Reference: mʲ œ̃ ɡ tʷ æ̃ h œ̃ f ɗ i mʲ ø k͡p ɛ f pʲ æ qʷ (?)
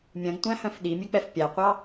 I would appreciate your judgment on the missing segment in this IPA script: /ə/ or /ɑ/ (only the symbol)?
ɑ